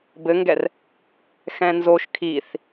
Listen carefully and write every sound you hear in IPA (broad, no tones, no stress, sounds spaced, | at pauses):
b ɘ ŋ ɡ ɛ r | x ɛ̃ n z o ʃ kʰ i θ